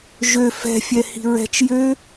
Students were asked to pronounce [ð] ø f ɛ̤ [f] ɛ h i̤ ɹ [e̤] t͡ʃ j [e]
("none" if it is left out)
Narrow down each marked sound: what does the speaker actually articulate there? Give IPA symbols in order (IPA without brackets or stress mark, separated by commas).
ʒ, fʲ, ɛ̤, ø